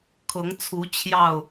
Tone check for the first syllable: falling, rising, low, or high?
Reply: rising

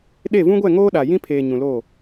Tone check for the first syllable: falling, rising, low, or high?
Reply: falling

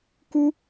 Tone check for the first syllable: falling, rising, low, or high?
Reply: high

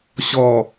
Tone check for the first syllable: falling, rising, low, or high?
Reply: low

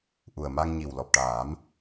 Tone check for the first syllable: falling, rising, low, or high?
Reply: low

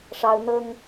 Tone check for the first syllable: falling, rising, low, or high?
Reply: high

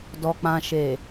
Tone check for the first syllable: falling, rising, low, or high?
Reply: low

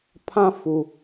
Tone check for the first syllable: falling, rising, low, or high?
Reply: high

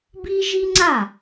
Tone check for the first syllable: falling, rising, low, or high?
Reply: high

